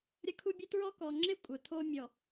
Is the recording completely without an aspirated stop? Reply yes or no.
no